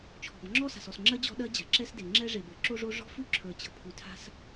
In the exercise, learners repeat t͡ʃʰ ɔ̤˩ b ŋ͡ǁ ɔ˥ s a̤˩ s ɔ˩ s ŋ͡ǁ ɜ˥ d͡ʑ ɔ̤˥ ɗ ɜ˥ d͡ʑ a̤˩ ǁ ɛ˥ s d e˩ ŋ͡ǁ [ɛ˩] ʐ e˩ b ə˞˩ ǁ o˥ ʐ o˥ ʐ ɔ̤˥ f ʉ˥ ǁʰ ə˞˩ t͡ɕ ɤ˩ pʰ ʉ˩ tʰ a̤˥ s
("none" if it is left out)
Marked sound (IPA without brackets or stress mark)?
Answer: ɛ˥